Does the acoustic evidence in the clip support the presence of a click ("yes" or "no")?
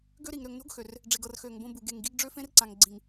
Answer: yes